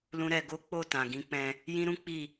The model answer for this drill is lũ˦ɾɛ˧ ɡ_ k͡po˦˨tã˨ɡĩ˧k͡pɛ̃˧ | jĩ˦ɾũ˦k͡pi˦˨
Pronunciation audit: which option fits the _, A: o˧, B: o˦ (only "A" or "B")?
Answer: B